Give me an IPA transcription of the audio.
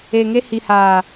e˨ ŋ e˦ h i˨ h aː˨

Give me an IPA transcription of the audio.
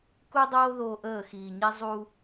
k u˦ dˤ oː˦ ð oː˦ ʔ əː˦˨ x iː˨ ɲ i˦ zˤ u˦

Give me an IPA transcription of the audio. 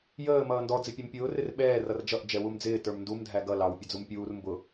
j əː m ʌː n d ɔ d͡z ɪ pʲ ɛ m pʲ ʊː r ɪ r ɓ ɛː r ʌ r d͡ʒ ʌ ʔ d͡ʒ ɛ w u m d͡z ɪː t ə˞ m n d u m dʱ æ ɡ ʌ l ɑ w pʲ ə d͡z u m pʲ uː r m b ʊ

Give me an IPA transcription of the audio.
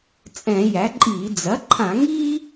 t͡sʼ ɛ̃˧˩˧ j æ˩˥ ǃʼ iː˧˩˧ d͡z ɐ˩˥ ǃʰ ã˧˩˧ ŋ iː˥

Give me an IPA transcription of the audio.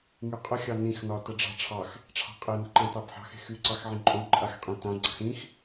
ŋ y qʼ ə xʲ ɑ n ĩ x n ɒ t ə ɖ͡ʐ ɑ̤ ʈ͡ʂʰ ɑ x | ʈ͡ʂʰ ɑ̤ qʼ e n ə̤ ǃ ã t ɑ b ħ ɑ̤ x e̤ x y ǀ ɑ x ʕ ẽ ǃʼ õ ǃʼ a x qʼ ẽ t ã ɡ͡ǀ ɑ̤ x ĩ x

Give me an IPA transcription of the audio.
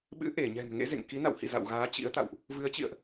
ɓ ɨ̰˧˥ ʔ e˧˩ ɲ ɛ̤˨˩ m ŋ ḛ˧˥ z ḛ˧˨ ŋ k i˨˦ n a̰˧˨ w h ḭ˧˨ z a̰˧˨ w ɣ aː˨˦ t͡ɕ ḭ˧˥ ə̯ t̪ a̰˧˨ w ʔ | v ɨ˨˦ ə̯ t͡ɕ ḭ˧˨ ə̯ ʔ

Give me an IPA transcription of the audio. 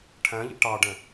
ʈʰ æ̃ ʎ ḭ ʈ ɑ ɖ ɛ̃

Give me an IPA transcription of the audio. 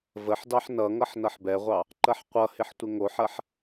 v ə ħ d ɑ ħ n ʌ ŋ ʌ ħ n ʌ ħ b ɛ ʁʷ ɑ | ǃ ɐ ħ qʷ ʌ h ɪ ħ tʷ ɪ ŋ o ħ ɐ ħ

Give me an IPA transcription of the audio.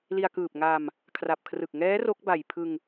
l i˧ a̯ k ɯː˨˩ p̚ ŋ a˧ m | kʰ r a˨˩ p̚ kʰ r ɯ˨˩ k̚ ŋ ɛː˦˥ r o˦˥ k̚ b a˨˩ j pʰ ɯ˧ ŋ

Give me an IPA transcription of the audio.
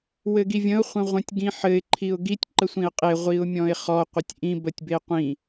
w ɘ ɡ i vʲ ə̃ ʊ̯ χʷ ə̃ ʁʷ ə̃ tʲ ɡ ĩ ħ ɘ ɪ̯ ǃʰ i ʊ̯ ɡ i tʲ ǃ ə sʷ ĩ ə̯ qʼ e ʁʷ i ʊ̯ mʲ ɔ̃ ɪ̯ χ ɔ qʷ ɘ tʲ ʔ ĩ b ə tʲ b e qʷ ĩ

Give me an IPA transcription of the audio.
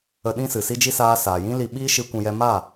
ə˧ ɗ ĩ˦ s ɨ˨ s i˦ d͡ʒ i˦ s aː˦ s aː˨ j ĩ˦ l i˧ ɓ iː˦ ʃ ɨ˦ kʷ ũ˧ j ɛ˦ m aː˦˨

